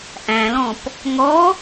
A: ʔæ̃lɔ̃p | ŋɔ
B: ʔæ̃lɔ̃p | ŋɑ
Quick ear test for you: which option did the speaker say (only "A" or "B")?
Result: A